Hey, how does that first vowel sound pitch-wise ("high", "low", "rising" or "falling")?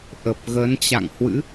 low